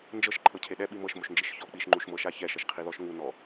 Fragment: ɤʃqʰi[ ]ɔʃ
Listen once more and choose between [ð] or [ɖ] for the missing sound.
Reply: ð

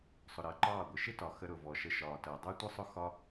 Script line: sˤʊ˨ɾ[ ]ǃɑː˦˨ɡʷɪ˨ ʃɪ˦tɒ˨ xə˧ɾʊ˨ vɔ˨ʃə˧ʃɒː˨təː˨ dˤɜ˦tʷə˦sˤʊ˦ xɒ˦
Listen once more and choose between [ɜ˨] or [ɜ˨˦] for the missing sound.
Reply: ɜ˨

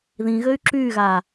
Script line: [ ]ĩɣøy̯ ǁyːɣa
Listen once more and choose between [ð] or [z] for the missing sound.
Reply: ð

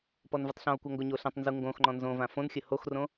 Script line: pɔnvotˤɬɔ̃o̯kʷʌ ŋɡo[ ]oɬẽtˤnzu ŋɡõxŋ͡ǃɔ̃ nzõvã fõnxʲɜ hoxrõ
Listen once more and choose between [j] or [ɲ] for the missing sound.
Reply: ɲ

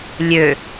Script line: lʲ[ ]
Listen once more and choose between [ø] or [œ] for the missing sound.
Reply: ø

